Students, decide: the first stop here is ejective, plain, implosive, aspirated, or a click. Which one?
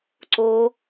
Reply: click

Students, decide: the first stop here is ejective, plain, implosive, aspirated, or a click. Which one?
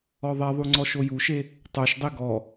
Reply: click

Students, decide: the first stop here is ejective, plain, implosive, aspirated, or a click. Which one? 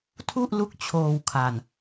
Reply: aspirated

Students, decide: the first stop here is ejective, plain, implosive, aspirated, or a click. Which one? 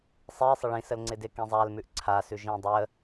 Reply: click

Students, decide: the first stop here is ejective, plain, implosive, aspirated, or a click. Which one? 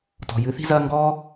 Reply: plain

